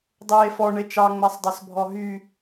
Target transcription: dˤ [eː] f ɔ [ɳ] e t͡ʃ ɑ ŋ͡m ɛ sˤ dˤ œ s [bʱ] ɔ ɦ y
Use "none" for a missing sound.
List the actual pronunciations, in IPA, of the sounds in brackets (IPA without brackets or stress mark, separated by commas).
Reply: eː, ɳ, bʱ